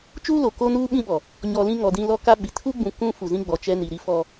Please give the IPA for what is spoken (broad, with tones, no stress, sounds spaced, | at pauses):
t͡ʃ uː˦ l o˨ k o˦ n uː˦ ɓ ĩ˦ ɓ ɔ˨ | ɲ ɔ˨ l ĩ˦ ŋ ɔ˨ d ĩ˦ l ɔ˦ k a˦ ɓ i˨ tʰ u˦ ɡ͡b ũ˨ k ũ˦ f u˨ z ĩ˦ ɡ͡b ɔ˨ t͡ʃ ɛ˦ n i˨ ɾ i˦ f ɔ˦